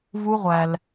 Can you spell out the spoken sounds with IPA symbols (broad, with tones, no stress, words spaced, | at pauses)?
vu˦ʁʷæ˧l